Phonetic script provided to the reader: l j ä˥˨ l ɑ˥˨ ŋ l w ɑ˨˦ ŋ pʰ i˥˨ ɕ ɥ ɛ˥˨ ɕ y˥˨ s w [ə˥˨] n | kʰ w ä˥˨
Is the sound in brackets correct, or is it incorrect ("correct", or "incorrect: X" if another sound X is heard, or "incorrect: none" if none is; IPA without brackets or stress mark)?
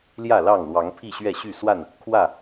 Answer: incorrect: a˥˨